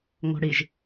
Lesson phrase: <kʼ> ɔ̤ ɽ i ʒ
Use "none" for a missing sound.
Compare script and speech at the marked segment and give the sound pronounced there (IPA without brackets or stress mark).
ŋ